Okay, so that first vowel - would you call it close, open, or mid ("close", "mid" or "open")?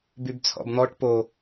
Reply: close